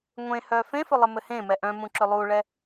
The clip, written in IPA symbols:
ŋʷ ẽ h œ f ẽ f ɵ lˠ ɘ m ɘ h ẽ m ɛ ʔ œ̃ m ũ ǁ ɵ lˠ u ɭ ɛ

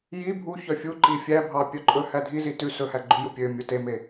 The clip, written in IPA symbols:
j i bʱ u ç œ fʲ u ǃ i fʲ æ bʱ ɑ pʲ œ ǃʼ ɵ h æ dʱ i z i t ʉ s ɵ h æ ɡ͡ǃ ʉ j u pʲ ø mʲ u t e m e

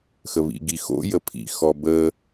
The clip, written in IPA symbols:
x ə β ḭ ɡ i x o̰ j ə pʰ ḭ x ɔ b ə

